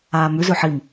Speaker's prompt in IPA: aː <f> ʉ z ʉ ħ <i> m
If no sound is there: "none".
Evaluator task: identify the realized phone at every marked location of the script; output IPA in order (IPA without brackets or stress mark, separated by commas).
m, i